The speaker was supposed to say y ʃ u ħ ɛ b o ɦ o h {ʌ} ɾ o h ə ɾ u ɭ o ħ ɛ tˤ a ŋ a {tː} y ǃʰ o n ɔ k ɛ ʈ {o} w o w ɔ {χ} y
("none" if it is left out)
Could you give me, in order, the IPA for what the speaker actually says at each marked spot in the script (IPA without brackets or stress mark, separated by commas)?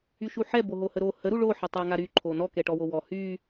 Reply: ə, ɾ, ɔ, h